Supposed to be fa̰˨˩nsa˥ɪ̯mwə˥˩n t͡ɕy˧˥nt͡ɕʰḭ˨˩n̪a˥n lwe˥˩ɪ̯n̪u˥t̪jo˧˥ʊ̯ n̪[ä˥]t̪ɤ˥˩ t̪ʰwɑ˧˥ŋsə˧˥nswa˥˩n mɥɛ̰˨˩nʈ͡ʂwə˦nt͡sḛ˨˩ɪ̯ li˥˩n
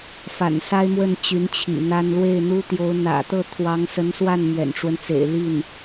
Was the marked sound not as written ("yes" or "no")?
yes